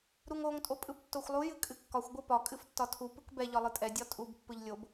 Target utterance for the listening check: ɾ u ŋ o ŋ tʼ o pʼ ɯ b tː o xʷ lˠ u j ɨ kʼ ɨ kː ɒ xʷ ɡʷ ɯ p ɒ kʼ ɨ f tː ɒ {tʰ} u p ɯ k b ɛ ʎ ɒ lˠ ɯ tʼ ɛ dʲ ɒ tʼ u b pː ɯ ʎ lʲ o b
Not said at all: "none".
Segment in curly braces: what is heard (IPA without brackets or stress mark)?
tʰ